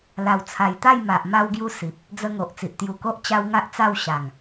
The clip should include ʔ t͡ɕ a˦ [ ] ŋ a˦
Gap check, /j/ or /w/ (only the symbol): w